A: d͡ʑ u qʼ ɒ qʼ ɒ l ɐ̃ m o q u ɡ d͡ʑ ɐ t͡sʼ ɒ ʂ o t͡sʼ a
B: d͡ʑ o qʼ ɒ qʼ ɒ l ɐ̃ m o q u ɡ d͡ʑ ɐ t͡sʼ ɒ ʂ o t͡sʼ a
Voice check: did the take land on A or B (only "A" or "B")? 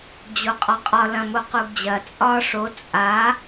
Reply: B